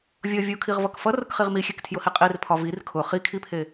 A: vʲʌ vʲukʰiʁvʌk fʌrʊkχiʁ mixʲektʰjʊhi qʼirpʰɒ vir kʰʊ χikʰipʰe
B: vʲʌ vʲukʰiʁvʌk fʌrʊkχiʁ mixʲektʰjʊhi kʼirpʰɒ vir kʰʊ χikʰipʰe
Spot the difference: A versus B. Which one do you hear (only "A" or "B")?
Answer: A